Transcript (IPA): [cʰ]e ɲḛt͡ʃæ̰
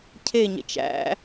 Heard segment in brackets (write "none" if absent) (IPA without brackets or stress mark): cʰ